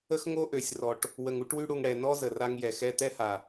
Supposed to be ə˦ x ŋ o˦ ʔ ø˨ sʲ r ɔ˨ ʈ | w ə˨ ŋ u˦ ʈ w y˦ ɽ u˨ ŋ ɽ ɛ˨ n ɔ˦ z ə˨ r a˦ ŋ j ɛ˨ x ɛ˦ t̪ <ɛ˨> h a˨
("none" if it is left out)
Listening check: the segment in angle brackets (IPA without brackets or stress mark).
ɛ˦